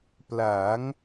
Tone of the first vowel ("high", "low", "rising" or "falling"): rising